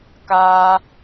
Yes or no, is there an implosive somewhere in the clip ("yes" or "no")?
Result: no